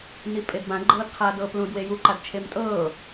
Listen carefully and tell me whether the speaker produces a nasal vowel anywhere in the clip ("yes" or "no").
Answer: yes